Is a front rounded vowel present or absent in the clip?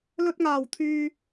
present